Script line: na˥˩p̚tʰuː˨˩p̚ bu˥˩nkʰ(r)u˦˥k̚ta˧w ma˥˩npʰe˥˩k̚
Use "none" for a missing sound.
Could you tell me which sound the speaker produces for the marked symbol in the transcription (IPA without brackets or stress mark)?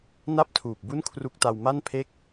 r